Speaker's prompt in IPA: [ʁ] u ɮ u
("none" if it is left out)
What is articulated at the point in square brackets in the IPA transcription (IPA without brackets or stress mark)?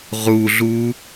ʁ